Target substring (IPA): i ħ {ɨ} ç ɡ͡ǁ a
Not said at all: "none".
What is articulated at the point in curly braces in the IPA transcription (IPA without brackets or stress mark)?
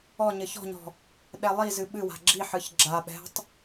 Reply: ɨ